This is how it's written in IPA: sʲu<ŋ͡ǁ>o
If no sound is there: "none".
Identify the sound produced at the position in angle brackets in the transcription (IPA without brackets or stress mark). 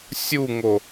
ŋ